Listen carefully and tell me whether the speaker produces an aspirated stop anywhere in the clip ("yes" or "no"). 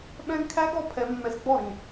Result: yes